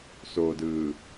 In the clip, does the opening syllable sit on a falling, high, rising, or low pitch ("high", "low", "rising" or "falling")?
low